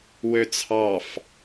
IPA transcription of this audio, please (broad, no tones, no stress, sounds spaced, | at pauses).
w ø t͡sʰ ɑ f